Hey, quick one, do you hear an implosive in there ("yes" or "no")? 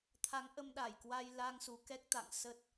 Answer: yes